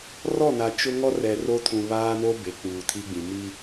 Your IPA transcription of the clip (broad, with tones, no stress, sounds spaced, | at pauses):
r ɔ˦˨ n a˨ t͡ʃ ʊ˦ ŋ ɔ˦ r ɛ˨ r o˦ tʰ ũ˨ β aː˦ n o˦ b e˨ k͡p uː˨ tʰ i˦ ɡ͡b ĩ˨ m i˦